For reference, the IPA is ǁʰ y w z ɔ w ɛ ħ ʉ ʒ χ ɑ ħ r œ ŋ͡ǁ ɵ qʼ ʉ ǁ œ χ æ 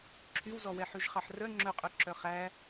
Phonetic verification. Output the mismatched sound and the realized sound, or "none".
none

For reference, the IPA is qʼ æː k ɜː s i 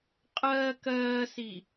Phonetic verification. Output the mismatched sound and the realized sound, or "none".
æː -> ɜː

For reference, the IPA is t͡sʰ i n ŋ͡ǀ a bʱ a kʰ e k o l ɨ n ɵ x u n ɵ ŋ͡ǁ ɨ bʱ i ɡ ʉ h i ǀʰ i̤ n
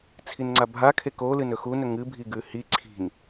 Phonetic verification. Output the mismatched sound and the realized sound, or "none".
ŋ͡ǁ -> ŋ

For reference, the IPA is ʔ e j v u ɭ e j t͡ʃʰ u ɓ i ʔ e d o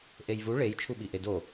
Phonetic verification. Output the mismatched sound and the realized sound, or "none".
none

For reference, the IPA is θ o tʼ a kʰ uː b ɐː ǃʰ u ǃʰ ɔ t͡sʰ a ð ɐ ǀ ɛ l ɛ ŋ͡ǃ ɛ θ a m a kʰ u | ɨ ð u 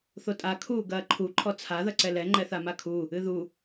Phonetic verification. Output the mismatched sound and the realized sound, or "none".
b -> ɡ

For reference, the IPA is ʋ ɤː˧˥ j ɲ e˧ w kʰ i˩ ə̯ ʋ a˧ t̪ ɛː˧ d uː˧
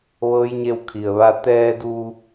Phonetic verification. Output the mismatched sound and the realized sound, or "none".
uː˧ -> u˧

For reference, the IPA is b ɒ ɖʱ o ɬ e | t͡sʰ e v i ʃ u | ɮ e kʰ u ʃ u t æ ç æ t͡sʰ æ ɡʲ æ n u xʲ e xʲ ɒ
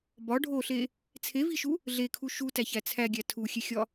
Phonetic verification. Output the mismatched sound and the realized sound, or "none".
n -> tʰ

